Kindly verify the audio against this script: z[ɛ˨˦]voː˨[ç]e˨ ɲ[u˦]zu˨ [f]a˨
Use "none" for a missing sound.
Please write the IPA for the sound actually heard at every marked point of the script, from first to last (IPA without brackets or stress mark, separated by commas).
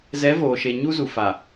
ɛ˨˦, ʃ, u˦, f